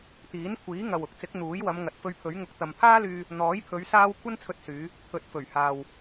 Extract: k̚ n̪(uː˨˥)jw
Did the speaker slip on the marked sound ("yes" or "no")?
no